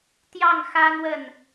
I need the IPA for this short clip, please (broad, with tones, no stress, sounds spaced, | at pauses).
t̪ j ɑ˥˩ ŋ x ä˥ n̪ w ə˥˩ n